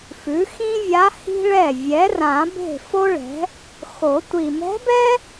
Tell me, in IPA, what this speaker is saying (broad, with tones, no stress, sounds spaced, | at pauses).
f ʉ˩˥ x ĩ˥ vʲ a˧˥ h i̤˥ ɭ ɛ˥˩ vʲ ɛ˩˥ r ã˨˩˦ b e̤˥˩ f o˥ ɭ ɛ̤˩˥ | x o˨˩˦ tʷ i˨˩ m ɛ̤˧˥ b ɛ˥